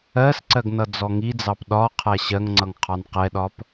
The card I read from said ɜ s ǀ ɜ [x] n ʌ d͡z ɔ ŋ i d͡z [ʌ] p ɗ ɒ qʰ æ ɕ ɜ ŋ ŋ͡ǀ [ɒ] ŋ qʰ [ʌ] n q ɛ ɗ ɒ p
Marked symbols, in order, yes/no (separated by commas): no, no, no, no